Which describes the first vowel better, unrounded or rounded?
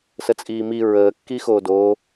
unrounded